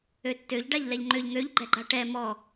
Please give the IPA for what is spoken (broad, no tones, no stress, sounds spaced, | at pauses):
ø tː ø ʎ ɖ a ʎ l ɛ ʎ ŋ͡ǃ ø ʎ ŋ ø ʎ ɡ͡ǃ ɛ ɡ͡ǃ a ʈ ɛ m ɔ